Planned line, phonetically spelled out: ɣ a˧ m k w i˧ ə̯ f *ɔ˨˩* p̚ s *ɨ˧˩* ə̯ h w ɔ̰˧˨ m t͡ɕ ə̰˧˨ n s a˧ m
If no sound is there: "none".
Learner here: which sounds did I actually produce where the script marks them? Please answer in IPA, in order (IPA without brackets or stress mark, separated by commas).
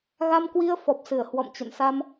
ɔ˨˩, ɨ˧˩